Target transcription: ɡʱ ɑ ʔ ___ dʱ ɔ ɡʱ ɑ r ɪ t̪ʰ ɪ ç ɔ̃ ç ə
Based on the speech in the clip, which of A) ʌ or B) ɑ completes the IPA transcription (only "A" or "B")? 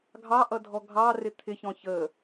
A